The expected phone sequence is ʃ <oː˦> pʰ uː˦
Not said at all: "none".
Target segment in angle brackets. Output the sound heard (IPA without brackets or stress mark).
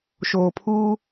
oː˨